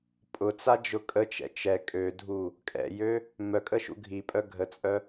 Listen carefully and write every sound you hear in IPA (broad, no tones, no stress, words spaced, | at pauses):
pʼʊt͡sad͡ʒʊ kʼət͡ʃɛ̰ t͡ʃɛ kʼødʱu | kʼɛ̰jø | mœkʼəʃṵ ɡʱipʼœ ɡʱət͡sʼœ